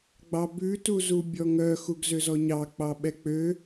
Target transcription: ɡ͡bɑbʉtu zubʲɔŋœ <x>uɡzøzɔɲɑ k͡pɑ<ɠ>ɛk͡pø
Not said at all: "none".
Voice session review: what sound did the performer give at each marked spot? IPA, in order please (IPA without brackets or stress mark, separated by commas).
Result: x, ɓ